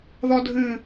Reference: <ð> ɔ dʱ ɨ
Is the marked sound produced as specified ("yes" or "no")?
yes